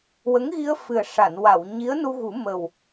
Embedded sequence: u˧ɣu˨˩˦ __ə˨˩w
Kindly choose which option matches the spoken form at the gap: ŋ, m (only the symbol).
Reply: m